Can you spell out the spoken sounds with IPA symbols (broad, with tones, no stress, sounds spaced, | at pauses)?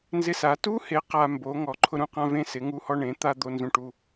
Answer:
n z ɪ˦ s a˨˦ t u˦ h e˨˦ q a˦ m b o˨˦ ŋ ɔ˨˦ ǃʰ ʊ˦ ɾ ũ˦ q ã˦ v ẽ˦ s ɪ˨˦ ŋ u˦ h ɔ˦ ɳ ẽ˨˦ t̪ a˦ d̪ o˦ n z ũ˦ ʈ u˦